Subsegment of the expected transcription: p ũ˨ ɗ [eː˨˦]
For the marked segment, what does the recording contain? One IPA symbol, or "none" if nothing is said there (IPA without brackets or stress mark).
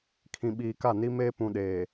eː˨